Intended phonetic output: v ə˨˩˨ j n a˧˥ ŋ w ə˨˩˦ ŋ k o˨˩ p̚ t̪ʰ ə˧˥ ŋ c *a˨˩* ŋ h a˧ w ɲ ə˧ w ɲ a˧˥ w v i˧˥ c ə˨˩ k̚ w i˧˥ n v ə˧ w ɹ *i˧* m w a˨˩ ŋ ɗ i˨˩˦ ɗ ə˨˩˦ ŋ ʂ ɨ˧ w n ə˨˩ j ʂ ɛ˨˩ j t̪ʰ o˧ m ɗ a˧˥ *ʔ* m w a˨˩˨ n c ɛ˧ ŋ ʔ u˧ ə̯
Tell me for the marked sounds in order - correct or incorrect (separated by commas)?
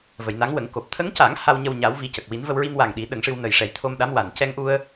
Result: incorrect, correct, incorrect